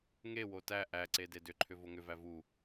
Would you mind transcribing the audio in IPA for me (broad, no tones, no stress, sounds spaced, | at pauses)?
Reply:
ŋ e w o t æ ʔ æ ǀ e d e d ʏ ǃʰ ʏ v o ŋ ʏ v æ v u